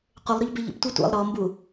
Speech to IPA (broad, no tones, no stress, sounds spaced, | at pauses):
qʷ ɪ lˠ ɾ ʊ ʎ b ɪ ʎ ə̰ p tʷ ɑ tʷ ḭ lˠ ɾ ɔ m b u